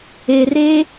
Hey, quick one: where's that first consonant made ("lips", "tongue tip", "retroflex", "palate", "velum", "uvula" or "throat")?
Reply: tongue tip